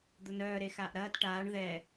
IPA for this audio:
d̪ ʊ n œː ɾ e x aː ʔ ɾ ɐː t ʈ aː ɳ ð ɛ

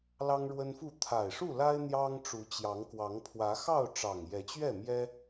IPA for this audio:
l ɑ˦ ŋ ɻ w ə˦ n f u˥˨ t̪ʰ a˨˩ ɪ̯ ʂ u˥˨ l a˦ ɪ̯ n̪ j ɑ˦ ŋ ʈ͡ʂ u˨˦ t͡ɕ j ɑ˨˦ ŋ k w ɑ˨˦ ŋ pʰ w ä˨˦ x ɑ˥˨ ʊ̯ ʈ͡ʂ ɑ˨˩ ŋ j ɛ˨˦ t͡ɕ ɥ ɛ˥˨ m j ɛ˦

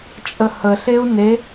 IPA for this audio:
t͡ʃʼ ə h ə ɬ e u̯ n e

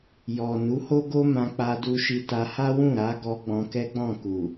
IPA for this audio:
j ɔ˨ n u˨˦ h o˦ ɡ o˦ m ã˧ k͡p a˧ d u˧ ʃ i˧ t a˧ h a˦ w ũ˦˨ ɾ a˨˦ ɡ ɔ˧ ɡ͡b ɔ̃˧ k ɛ˦ ɡ͡b ɔ̃˦˨ k u˨

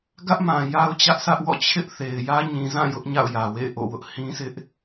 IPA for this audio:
ɡ ä˦ ʔ m ã˨ j a˦ ʊ̯ t͡ɕ ä˦ ʔ s ä˦ ʔ w ɔ̰˦˨ t͡ɕʰ ɪ˦ ʔ θ e˨ ɪ̯ j ä˦ ɲ ĩ˨ z ã˦˨ j ʊ˦ ʔ ɲ a̰˦˨ ʊ̯ j ä˨ w ḛ˦˨ ɪ̯ ʔ o̰˦˨ w ʊ˦ ʔ h ĩ˦ sʰ ɪ˦ ʔ

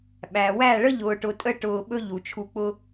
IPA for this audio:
ɓ æ˨ w æ˦˨ ɭ ə˦ ʎ ʊː˨ ʈ ʊ˨ tʼ ə˧ ʈ ʊː˧ ɓ ɵ˦ ʎ u˨ t͡ʃʰ u˧ k͡p ʊ˦

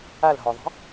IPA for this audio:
a l ɦ ɔ ðˤ i̤

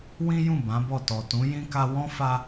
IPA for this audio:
w ĩ˦ j ũ˦˨ b ã˨˦ b ɔ˦˨ t ɔ˨ t ũ˨˦ j ĩ˦ k a˧ w ɔ̃˦ f a˧

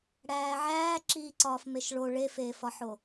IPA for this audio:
ɽ æː ʕ æː ǁ iː ǀ ɒː f m e ʃ ɭ o ɭ e f eː f ɒ ħ o

